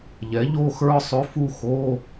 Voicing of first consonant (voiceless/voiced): voiced